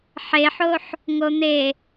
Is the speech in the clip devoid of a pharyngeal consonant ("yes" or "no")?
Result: no